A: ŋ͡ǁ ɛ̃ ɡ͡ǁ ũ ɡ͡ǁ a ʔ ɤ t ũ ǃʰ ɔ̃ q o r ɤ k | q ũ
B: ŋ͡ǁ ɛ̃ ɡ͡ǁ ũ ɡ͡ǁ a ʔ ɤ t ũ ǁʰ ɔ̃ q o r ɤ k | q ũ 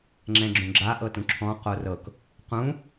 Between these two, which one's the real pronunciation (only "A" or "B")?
B